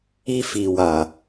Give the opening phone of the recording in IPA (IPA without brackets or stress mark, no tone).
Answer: i